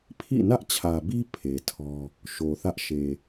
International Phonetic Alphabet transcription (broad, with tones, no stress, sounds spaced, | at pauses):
pʰ ḭ˦˨ n ä˦ ʔ t͡ɕʰ ä˨ b i˦ pʰ e˨ tʰ ɔ˦ | ʃ o˨ θ ä˦ ʔ ʃ e˨